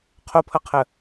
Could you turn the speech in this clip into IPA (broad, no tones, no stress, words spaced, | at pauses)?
qʰopʰʌqʰə